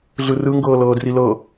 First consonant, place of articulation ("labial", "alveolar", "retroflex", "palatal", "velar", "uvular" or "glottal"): alveolar